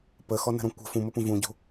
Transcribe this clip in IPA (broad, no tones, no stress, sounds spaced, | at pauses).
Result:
p ə x ɔ n ə̤ ɾ ɔ̃ kʷ ə̤ f ũ m ə p ũ v ũ ɟ o̤